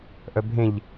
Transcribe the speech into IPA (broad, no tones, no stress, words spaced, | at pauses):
ʔœbʱẽʎ